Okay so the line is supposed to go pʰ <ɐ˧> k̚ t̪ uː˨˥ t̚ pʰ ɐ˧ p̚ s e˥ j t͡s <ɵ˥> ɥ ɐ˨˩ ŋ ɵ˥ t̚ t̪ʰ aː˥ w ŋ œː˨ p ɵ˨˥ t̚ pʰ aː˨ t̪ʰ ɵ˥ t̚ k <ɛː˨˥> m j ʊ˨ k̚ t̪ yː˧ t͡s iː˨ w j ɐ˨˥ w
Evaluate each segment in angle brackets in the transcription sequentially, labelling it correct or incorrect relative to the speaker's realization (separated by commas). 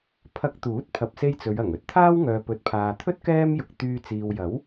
correct, incorrect, incorrect